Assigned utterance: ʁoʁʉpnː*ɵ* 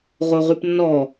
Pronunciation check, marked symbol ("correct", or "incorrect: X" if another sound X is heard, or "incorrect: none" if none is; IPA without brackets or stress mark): incorrect: ɔ